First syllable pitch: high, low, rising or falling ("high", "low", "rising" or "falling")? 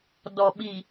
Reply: low